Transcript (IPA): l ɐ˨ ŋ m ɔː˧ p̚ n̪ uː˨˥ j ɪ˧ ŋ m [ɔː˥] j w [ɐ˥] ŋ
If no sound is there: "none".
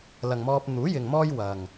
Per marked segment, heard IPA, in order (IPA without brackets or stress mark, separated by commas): ɔː˥, ɐ˨